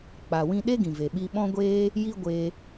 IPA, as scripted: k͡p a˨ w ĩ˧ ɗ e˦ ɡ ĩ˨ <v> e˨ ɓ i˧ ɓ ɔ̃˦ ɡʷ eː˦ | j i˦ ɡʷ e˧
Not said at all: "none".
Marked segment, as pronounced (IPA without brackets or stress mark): v